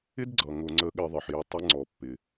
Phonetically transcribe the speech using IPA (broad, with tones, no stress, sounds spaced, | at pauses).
ɪ˦ d ɡ͡ǀ ʌ˩ ŋ ʊ˧˩˧ ŋ͡ǀ ə˨˥ ɠ ɪ˧˩˧ ðˤ ɪ˩ ħ j ɪ˧˩˧ tˤ ɪ˨˥ ŋ͡ǀ ɔ˩ pː ɪ˩